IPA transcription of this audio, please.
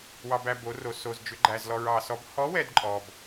wɑ˧bæ˧ bo˧˥ ro˧so˧zd͡ʒʏ˧˥ ɡ͡ǃæ˧zlɔ˧ɹ ɑ˧sɔ˧˥b hɔ˧˥wɛ˧d ǃʼɔ˧b

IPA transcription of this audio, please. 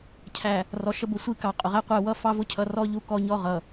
cʰæ˨ | rɔ˨ʃə˦bʊ˦˨sʷi˦ kɑ˨qʼʊ˨ʁæ˦qʷæ˦˨ wʌ˦ fɑ˦vʊ˦cʰʌ˨ rɔ˦ ʎu˦kɔ˦ ɲɔ˦ʁʌ˨

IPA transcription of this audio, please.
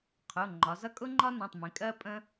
qʰʊ˩˧˩ŋ͡ǃɒ˩˧zʌ˥ kʼʊ˥ŋ͡ǃɒ˥nũ˩˧˩tˤmĩ˩˧ kʼɜ˥pʼə̃˥

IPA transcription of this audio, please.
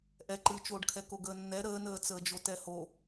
ʔɛǃɨːt͡ʃoːɖkʰɛ koɡəːnːɛ ɾəːnəː t͡səːd͡ʒotɛho

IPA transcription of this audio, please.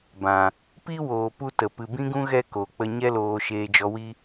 bã˨ | pi˦woː˨pu˧ tə˨ pɨ˨bĩ˦ɡũ˦ ɣɛ˦ko˨ k͡pə˧ɲɛ˦loː˧ ʃeː˧d͡ʒɔ˧wi˦

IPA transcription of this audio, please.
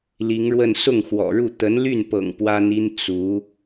li˧˥ŋɻwə˥˧n sʊ˥˩ŋxwɔ̰˨˩ɻu˥˩ t̪ə˧˥nly˥˩npɤ̰˨˩ŋ pwa˥ni˥n t͡su˧˥

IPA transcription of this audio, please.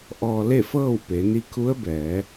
ʔɔː˧ le˥˨fɤː˥˨w pe˩˧ ni˧kʰu˧˥ə̯bɛː˩˧

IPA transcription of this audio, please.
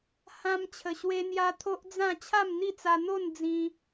hã˦m t͡ɕʰə˧ɕwe˦n̪ja˦ t̪ʰo˦ʔd͡zã˥˧ t͡ɕʰa˥˧mn̪i˥˧t͡sa˧ n̪o˥˧n d͡zĩ˧

